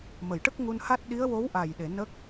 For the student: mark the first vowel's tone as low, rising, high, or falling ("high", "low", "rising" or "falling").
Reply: low